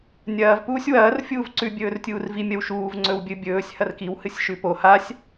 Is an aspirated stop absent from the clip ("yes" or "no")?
yes